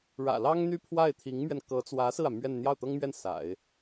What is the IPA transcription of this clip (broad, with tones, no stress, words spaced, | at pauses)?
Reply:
ɻä̰˨˩lɑ˥ŋ n̪y˥˧pʰwa˥˩ɪ̯t̪ʰi˧˥ŋmɥɛ˧n kɤ˧˥t͡swä˧˥ sɹ̩˥˩ä˩ mɥɛ˥˧n n̪jɑ˥˩ʊ̯t̪ɤ˥ŋmɥɛ˥˩n sa̰˨˩˦ɪ̯